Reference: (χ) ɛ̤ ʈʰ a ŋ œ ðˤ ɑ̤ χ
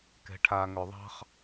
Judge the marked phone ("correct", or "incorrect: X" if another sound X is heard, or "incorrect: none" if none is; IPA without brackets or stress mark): incorrect: k